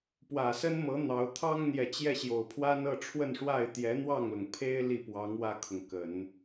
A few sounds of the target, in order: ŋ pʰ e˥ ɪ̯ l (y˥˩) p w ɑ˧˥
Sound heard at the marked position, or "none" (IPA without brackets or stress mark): i˥˩